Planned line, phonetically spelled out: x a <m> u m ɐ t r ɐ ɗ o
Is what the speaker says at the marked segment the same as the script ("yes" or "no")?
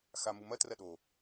yes